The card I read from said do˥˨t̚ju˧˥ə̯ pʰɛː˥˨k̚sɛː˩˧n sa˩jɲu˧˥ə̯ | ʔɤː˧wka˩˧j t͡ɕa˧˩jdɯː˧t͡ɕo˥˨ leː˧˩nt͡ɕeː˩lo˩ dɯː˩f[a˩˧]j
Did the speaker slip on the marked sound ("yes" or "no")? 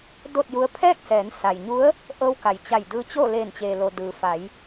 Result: no